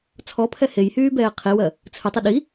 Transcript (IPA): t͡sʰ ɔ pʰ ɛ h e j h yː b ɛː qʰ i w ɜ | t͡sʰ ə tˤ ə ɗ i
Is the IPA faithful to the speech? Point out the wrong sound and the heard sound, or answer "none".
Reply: none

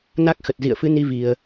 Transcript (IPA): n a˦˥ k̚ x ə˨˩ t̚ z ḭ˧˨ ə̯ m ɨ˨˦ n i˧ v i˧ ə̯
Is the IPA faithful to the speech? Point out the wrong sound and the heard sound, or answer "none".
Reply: m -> f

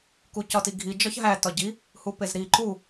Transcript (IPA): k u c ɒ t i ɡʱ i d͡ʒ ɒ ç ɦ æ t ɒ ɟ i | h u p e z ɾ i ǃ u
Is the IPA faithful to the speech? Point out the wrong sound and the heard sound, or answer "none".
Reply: none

